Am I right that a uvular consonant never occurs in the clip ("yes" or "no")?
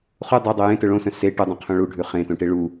no